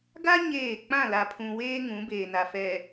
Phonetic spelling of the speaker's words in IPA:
ɡ a˦ ɲ eː˦˨ k͡p ã˦˨ l a˨ pʰ ũ˨ w eː˦ ŋ ũ˨˦ b eː˨ n a˨ f ɛ˨

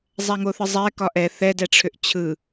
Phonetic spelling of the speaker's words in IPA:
zˤ æ ŋ o θ ɯ zˤ ɛ k ɒ ʔ ɛ θ ɛ d ɛ ʈ͡ʂʰ ʏ ʔ t͡ɕʰ ɯ

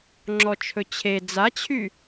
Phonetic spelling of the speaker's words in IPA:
ŋ͡ǁ ɔ t͡ʃʰ ɵ t͡ɕʰ e d͡z a t͡ɕʰ y

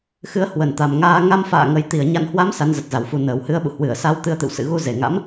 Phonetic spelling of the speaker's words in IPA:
x ɨ˨˦ ə̯ h w ə˨˩ n t̪ a˨˩ m ŋ aː˧ ŋ a˧ m f a̰ː˧˨ ŋ ə˨˩ j t̪ i˨˩ ə̯ ɲ a̰˧˨ n h w a˨˦ m s a˨˦ n z ə˨˩ t̚ z a˧˩ w f u˨˦ n əː˨˩ w h ɨ˧ ə̯ ɓ ṵ˧˨ h w ɨ˧˩ ə̯ s a˧ w t̪ ɨ˧ ə̯ t̪ ɨ̰˧˨ w s ɨ̰˧˨ ɣ u˧ z e˨˩ ŋ a̰˧˥ m

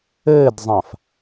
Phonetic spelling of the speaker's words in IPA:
ɘː d zˤ ã f

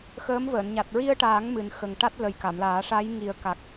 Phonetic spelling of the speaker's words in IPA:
x əː˧˥ m v əː˨˩˨ n ɲ a˨˩ t̚ ɹ i˧ ə̯ ʈ aː˨˩˦ ŋ m ɨ˨˩ n x ə˨˩ ŋ ʈ a˦˥ t̚ l ə˨˩ j k a˨˩˨ m l aː˨˩˦ ʂ a˧˥ j ŋ i˨˩˦ ə̯ k a˨˩ k̚

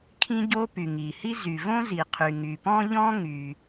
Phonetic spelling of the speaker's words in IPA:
kʰ ĩ˥ ɟ o˥ p y˩ ŋ i˩ h i˥ z y˩ v õ˥ z i˩ qʰ y˩ ŋ y˩ p ɔ̃˥ ʎ ɔ̃˥ ŋ y˩

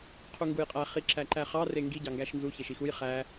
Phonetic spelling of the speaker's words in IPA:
qʰ u ŋ ɡ u j qʼ æ χ i ǁ æ ǃ æ χ ɑ r e ŋ ɡ i ɟ ɑ ŋ ɡ æ ʃ n z u ç e ʃ i x u j χ æ

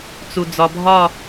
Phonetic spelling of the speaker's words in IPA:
t͡s u˨ d͡z ɒ˨ bʱ ɒ˦˨

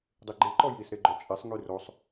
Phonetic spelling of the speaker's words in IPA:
dˤ i ɡ͡ǃ e ǃ ɔ j i s ɾ e ɡ͡ǃ œ t͡ʃʼ e sˤ ŋ y r o sˤ

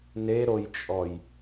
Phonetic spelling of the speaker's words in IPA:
n e ɾ o j t͡ʃʼ ɔ j

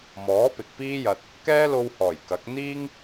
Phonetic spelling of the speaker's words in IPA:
m ɔː˨˥ p ɪ˨ k̚ p iː˥ j ɐ˧ t̚ | k ɛː˥ l o˧ w h ɔː˨˩ j k ɐ˨˥ k̚ n̪ iː˥ ŋ

